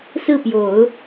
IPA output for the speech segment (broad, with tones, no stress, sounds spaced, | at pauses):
s ɹ̩˥˩ p j o˨˩˦ ʊ̯